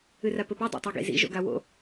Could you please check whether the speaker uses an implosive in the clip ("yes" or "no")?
no